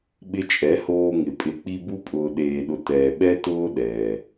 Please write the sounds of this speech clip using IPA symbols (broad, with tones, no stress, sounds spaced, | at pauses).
ɓ ɪ˧ t͡ʃʼ ɛ˨˦ h oː˧ ŋ ɪ˨ pʼ ɪ˨ k͡p i˧ b u˦ pʼ ʊː˨ ɗ eː˨ ɗ ʊ˨ t ɛː˨ ɓ ɛ˦ t ʊː˦ ɗ ɛː˨